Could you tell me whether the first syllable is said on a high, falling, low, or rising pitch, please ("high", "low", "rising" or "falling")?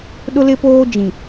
high